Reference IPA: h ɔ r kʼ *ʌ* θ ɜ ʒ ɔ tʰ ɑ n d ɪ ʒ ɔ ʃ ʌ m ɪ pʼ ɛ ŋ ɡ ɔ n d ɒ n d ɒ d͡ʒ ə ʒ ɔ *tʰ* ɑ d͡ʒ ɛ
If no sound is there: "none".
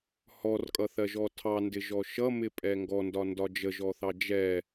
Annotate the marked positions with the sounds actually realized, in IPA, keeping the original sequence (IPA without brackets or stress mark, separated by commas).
ʌ, θ